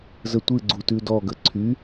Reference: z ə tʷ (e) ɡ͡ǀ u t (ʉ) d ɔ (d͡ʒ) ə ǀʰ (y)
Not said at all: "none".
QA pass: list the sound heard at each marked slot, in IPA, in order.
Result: ɨ, ʉ, ɡ, y

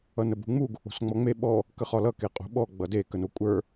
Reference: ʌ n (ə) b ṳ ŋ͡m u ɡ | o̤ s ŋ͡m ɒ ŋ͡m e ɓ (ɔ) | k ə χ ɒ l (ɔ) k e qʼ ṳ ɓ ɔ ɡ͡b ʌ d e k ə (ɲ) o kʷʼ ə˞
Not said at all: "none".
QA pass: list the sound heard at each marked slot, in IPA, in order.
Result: ə, ɔ, ʌ, n

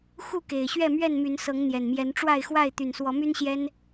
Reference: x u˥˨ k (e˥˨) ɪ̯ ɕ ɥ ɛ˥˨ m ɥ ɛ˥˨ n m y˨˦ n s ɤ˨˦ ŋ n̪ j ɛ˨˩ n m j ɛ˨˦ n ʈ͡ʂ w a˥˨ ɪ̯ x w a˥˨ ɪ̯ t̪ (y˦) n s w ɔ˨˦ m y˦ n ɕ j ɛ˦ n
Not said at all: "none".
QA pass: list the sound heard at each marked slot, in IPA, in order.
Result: e˨˩, y˨˩

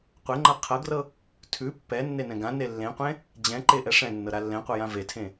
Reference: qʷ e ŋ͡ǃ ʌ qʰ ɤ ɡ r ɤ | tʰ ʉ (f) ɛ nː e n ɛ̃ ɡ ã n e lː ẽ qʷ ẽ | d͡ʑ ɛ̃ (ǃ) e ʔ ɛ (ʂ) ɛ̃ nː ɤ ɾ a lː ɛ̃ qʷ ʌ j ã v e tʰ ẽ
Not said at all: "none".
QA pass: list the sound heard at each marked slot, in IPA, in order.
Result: pː, ǃ, ʂ

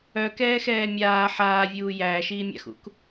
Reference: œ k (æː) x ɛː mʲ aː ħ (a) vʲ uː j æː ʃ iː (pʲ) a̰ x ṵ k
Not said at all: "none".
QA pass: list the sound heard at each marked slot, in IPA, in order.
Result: ɛː, aː, mʲ

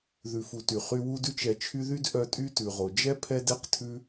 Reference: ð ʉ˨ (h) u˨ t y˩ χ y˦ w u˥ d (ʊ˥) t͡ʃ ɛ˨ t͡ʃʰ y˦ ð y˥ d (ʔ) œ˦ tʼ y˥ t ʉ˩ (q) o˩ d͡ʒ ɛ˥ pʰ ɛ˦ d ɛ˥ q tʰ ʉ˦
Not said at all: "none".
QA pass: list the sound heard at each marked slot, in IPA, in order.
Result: f, ʉ˥, ʔ, ʁ

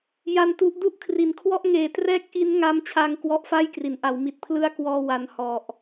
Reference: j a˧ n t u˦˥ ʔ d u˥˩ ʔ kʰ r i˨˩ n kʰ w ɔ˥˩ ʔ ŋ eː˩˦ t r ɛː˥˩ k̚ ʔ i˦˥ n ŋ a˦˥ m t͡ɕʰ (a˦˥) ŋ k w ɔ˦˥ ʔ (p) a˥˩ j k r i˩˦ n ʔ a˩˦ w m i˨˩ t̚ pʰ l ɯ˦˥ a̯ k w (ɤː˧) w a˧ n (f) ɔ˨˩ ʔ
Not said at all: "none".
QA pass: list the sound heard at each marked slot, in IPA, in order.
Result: aː˦˥, f, ɔː˧, h

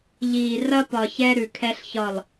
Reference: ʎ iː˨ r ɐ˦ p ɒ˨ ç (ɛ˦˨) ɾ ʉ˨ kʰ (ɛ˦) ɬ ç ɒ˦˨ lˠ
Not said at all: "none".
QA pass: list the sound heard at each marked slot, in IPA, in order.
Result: ɛ˦, ɛ˦

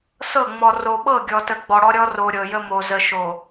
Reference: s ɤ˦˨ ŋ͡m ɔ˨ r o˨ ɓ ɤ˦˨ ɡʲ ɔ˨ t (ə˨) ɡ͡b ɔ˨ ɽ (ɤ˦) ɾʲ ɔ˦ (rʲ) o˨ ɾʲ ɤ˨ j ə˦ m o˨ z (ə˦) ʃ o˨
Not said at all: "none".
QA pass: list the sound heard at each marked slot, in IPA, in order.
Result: ə˨, ɔ˦, r, ə˨

